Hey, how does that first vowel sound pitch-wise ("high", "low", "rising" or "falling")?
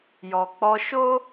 low